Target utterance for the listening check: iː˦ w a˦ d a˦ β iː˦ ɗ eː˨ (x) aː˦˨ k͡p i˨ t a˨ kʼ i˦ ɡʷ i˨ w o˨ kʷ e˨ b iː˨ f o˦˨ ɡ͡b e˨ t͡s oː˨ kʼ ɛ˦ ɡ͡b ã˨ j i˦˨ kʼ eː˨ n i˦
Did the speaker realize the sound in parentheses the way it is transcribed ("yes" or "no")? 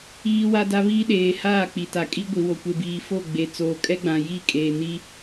no